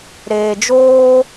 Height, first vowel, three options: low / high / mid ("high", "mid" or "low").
mid